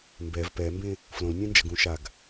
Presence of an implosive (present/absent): absent